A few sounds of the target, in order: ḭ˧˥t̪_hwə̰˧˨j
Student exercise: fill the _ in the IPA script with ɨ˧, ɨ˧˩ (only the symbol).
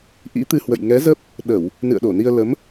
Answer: ɨ˧